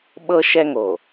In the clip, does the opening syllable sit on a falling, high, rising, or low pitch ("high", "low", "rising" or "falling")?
high